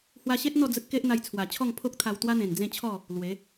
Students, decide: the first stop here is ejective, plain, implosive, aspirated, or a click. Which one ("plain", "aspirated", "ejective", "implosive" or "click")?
plain